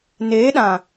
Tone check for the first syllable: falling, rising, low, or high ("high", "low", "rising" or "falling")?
rising